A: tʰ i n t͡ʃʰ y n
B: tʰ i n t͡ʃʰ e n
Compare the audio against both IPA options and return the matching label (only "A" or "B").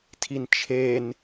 B